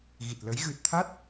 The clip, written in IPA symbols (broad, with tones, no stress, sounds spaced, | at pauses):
ɣ i˨˩ t̚ l ə˨˦ j ɣ ɨ˨˩ t̚ t̪ʰ a˦˥ t̚